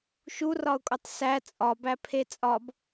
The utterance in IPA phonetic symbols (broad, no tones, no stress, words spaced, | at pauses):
ʃurɒʊ̯kʼotˤ sæ t͡sʼɒbæpʰe t͡sʼɒb